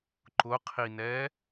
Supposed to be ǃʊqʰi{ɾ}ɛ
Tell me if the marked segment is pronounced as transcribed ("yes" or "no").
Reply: no